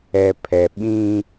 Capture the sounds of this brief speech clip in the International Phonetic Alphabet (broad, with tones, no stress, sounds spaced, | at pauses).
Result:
ɛ˨ pʰ ɛ˨ ɓ ĩ˦